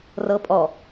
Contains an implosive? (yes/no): no